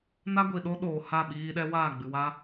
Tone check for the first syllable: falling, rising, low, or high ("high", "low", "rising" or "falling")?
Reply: high